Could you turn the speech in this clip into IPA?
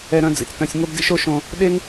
ɛ˧ ɾ œ̃˧ d͡z ḭ˨ t͡s t œ̃˧ sʲ ŋ o˦ b d ḭ˦ ʃ o˦ ʃ õ˧ | ɗ e˦ ŋ

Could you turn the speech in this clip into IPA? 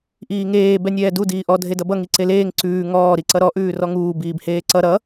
ʔ iː ŋ eː b ɛ nʲ ɛː d u d iː ʔ ɔ dʱ e d ʌ b ʌ ŋ i ǀ e l eː ŋ ǀ ʉː ŋ ɔː ɾ i ǀ ʌ ɾ ɔ ʔ ʉː r ɔ ŋ uː b iː b h eː ǀ ʌ ɾ ʌ

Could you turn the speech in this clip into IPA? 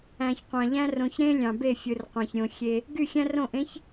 æ̃˨ ç qʷ ɑ̃˨ ʎ æ̃˦ r õ˨ ç ɾ ẽ˦ lʲ ɑ̃˨ b e˦˨ fʲ ɯ˨ r qʷ æ̃˨ ç ɾʲ õ˨ xʲ e˦ | ɡ y˦˨ xʲ æ̃˦ r õ˦˨ ʔ ẽ˨˦ ç

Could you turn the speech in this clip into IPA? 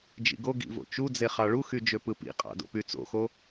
d͡ʒ ḭ ɡ o ɡ ḭ v o̰ t͡ʃ u d͡z e χ ɑ ɭ u x y d͡ʒ ø p ɯ p ḭ qʼ ɑ̰ d o̰ p y t͡s o̰ x o

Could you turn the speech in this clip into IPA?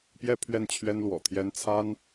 p j ɛ˥˧ pʰ ɥ ɛ˥˩ n t͡ɕʰ ɥ ɛ˥ n l w ɔ̰˨˩ t̪ʰ j ɛ˥ n t͡sʰ a˥ n

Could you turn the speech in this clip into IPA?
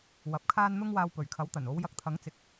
w ɐ˨ p̚ kʰ aː˥ n n̪ ʊ˥ ŋ w aː˧ w p ɵ˨˩ ɥ kʰ ɐ˨˥ w t̪ ɐ˨˩ n o˨˧ w j ɐ˧ k̚ t̪ʰ ɐ˨˥ ŋ t͡s ɪ˨ k̚

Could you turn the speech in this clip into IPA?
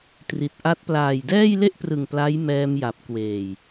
t r i˨˩ t̚ ʔ a˦˥ t̚ p l aː˨˩ j d ɛː˥˩ j l e˥˩ ʔ p r ɯ˨˩ ŋ p l a˦˥ j m ɛː˧ m j a˨˩ p̚ k w eː˨˩ j

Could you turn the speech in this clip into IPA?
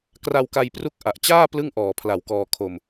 k r a˧ w k a˧ j p r u˦˥ k̚ ʔ a˨˩ ʔ t͡ɕ aː˥˩ p l ɯ˥˩ ŋ ʔ ɔː˨˩ pʰ l a˨˩ w k ɔː˧ kʰ o˧ m

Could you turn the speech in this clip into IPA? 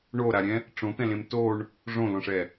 ɳ o ɾ a ɾʲ ɛ̃ | ʈ͡ʂ õ t̪ ɛ̃ l ẽ m t o ɳ | ʐ õ l õ ʂ ɛ

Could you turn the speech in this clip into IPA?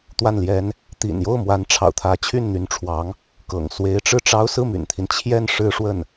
t̪ w a˥˩ n l j ɛ˥ n | t̪ ḭ˨˩ n j o˥˩ ʊ̯ m w a˧˥ n ʈ͡ʂʰ ɑ̰˨˩ ʊ̯ t̪ʰ ä˧˥ t͡ɕʰ y˥˩ n n̪ y˧˥ n ʈ͡ʂʰ w ɑ˧˥ ŋ | k ɤ̰˨˩ ŋ s w e˧˥ ɪ̯ ʈ͡ʂ ɻ̩˥˩ ʈ͡ʂ ɑ˥ ʊ̯ s ɹ̩˥˩ m y̰˨˩ n t̪ʰ i˦ n t͡ɕʰ j ɛ˥˩ n ʂ ɻ̩˥ ʂ w ə˥˩ n

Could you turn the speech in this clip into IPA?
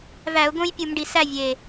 v æ˧˩˧ ʊ̯ ɡ õ˥ j pʲ u˧˩˧ m ɖ i˨˩ s æ˥˨ vʲ e˨˩

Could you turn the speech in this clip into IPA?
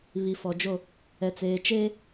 β i˨ f ɔ˨ d͡ʒ o˦˨ | ɛ˨ t͡s eː˨ t͡ʃ eː˦

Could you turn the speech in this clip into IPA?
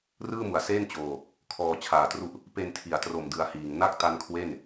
r ɯː˥˩ m u˨˩ a̯ s eː˥˩ n t͡ɕ oː˧ | kʰ ɔː˧ t͡ɕʰ aː˨˩ t r u˦˥ ʔ | p e˧ n tʰ i˩˦ a̯ t r o˨˩ m d ɯ˧ a̯ h iː˨˩ ŋ n a˥˩ k̚ t a˦˥ n kʰ w e˥˩ n

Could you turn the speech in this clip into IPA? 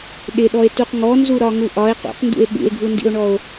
ɗ ɪ ɗ ɔ e̯ t u q ŋ ɔ n z u ɾ ɒ ŋ u ʔ ɒ e̯ q ṵ q n d ṵ e̯ ɓ ṵ e̯ ɡʱ u n d ḭ o̯ ɳ ɔ o̯

